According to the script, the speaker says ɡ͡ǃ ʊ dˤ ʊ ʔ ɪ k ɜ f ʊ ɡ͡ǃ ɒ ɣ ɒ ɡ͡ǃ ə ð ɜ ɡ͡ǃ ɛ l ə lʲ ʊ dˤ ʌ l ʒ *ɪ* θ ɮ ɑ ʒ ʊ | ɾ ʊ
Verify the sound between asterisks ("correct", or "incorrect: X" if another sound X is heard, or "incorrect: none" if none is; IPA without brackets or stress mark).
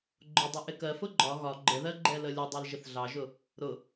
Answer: correct